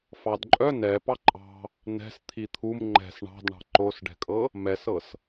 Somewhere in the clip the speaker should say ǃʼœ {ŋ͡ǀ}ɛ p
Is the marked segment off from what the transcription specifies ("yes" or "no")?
yes